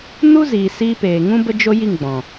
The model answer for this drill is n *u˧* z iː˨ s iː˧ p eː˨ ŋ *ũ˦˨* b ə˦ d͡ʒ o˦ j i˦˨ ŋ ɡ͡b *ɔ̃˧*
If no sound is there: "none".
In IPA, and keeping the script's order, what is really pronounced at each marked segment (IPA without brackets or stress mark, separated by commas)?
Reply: u˦, ũ˦, ɔ̃˨